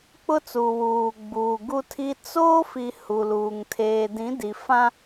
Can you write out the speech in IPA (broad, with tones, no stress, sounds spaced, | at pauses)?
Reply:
k͡p ʊ˦ t͡s u˨ w uː˨ ɡ͡b uː˨ ɡ u˦ tʰ i˦ t͡s oː˦ f i˨ h u˨ l uː˨ ŋ tʰ eː˨ d ĩ˨˦ d i˨ f ã˦